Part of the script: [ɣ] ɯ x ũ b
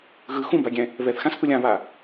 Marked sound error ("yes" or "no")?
no